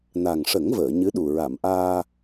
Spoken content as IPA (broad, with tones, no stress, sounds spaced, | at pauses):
n a˨˩ ŋ ʂ ə˨˩˦ ŋ v əː˨˩˨ ɲ ɨ˧˥ ɗ u˨˩ ɹ a˨˩˨ m ʔ aː˧